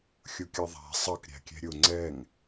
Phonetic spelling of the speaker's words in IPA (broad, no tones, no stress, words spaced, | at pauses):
xʲʊkʲɑðˤæ̤ sˤʌk ɾʲæ̤kʲɛ̤ɾʲʊ ŋ͡ǀɛŋ